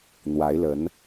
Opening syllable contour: rising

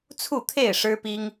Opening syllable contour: falling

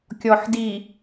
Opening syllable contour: low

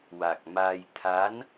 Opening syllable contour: low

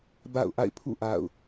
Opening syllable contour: falling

